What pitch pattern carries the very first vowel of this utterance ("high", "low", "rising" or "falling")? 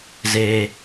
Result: low